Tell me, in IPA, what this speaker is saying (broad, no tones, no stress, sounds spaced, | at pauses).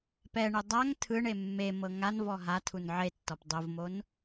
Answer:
p ɛ ɳ e dˤ a ŋ tʰ ɯ ɳ e mː e m ɤ ŋ a n v ɔ ɦ a tʰ u n ʕ e tː ɔ p dˤ o v m o n